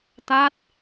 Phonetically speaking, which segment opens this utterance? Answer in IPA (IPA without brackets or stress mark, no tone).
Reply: t̪